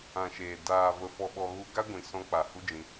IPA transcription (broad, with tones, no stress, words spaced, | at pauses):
ã˨ʃeː˨ daː˨ və˧fɔ˧ɓɔ˧ ɣu˧ɡa˦ɡʷĩ˨ sɔ̃˧k͡pa˨ hu˦d͡ʒĩ˧